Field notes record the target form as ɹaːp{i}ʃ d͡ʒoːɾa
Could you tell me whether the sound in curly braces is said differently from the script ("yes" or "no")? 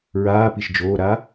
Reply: no